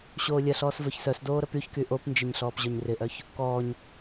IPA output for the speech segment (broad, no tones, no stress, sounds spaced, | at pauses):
ɕ oː lʲ ɐ ɬ ɔː s v œ ç s œ s d oː ɾ ə p y ç k y ʔ o p n d͡ʒ ɪ ɲ ɬ ɔː p ʑ œ ɲ r ɪ ʔ œ ç | k ɔː ɲ